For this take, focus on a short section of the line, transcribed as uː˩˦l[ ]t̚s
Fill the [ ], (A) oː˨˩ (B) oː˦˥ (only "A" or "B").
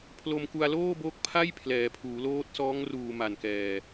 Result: B